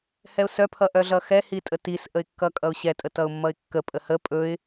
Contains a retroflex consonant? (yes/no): no